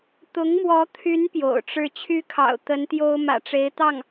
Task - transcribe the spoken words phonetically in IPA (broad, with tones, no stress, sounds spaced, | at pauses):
t̪ ʊ˧˥ ŋ m w ɔ˧˥ t̪ʰ y˧˥ n p j o̰˨˩ ʊ̯ ʈ͡ʂ ɻ̩˥˩ t͡ɕʰ y˥ kʰ ɑ̰˨˩ ʊ̯ t̪ ə˧˥ n t̪ j o˥ ʊ̯ m ä̰˨˩ ʈ͡ʂ e˧˥ ɪ̯ t̪ ɑ˥˩ ŋ